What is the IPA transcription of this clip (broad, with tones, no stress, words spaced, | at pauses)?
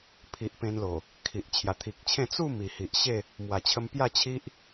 pʰi˨ʔ pẽ˧nlo˨˩ | kʰi˨ʔ t͡ɕʰja˨˩t̪ʰi˨k̚t͡ɕʰẽ˥˧ t͡su˥˧ mi˨˩hi˨ʔɕe˥˧ | mwa˨˩t͡ɕʰə˧m pja˥˧t͡ɕʰi˦ʔ